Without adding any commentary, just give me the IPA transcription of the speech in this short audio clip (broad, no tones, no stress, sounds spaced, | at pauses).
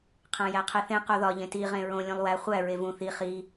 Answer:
qʰ æ̃ j æ qʰ e θ ẽ q o ð ɒ ʎ ẽ t i ʁ ẽ ɹ õ lʲ ũ lˠ w æ χʷ æ ɹ e v ũ θ i χ i